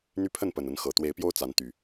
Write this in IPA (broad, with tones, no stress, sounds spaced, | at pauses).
n̪ y˦ pʰ ə˥˨ n p ə˨˩ n ə˨˦ n x ɤ˨˩ t̪ w e˨˦ ɪ̯ p j o˦ ʊ̯ t͡s a˨˦ n t̪ y˨˩